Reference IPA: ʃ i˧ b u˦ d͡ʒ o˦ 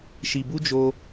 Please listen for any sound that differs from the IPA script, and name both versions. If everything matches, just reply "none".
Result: none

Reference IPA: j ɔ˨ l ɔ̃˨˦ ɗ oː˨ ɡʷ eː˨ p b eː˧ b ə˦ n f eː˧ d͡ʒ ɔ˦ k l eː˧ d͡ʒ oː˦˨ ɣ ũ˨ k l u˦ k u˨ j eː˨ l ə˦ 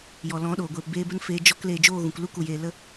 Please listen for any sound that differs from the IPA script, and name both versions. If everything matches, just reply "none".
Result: none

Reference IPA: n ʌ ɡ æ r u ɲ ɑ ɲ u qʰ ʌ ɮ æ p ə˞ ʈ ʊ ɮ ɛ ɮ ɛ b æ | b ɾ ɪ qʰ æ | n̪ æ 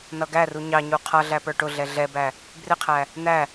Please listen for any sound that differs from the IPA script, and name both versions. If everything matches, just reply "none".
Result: ɾ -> r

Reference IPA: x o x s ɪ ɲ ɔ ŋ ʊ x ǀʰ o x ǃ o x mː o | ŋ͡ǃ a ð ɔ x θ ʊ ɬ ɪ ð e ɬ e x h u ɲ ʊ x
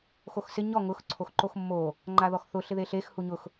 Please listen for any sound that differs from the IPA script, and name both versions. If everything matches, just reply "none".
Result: none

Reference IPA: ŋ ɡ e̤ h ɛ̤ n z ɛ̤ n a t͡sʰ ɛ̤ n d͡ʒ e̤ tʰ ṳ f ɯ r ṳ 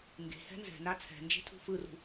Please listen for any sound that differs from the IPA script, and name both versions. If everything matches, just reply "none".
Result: none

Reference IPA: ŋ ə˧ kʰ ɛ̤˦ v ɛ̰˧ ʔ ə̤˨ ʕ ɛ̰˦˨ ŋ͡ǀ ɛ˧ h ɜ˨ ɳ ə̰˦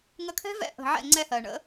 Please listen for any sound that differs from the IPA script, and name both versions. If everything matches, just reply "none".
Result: none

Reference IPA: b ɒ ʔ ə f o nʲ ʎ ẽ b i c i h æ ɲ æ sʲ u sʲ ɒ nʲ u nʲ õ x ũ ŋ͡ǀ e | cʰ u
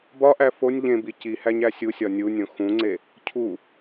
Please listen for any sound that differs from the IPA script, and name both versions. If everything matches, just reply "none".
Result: ə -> æ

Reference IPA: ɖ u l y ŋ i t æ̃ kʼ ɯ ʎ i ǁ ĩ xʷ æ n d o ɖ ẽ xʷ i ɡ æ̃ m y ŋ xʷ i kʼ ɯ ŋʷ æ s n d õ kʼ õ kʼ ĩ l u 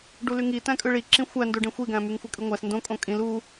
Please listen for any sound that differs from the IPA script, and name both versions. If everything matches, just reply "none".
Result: ʎ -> ɭ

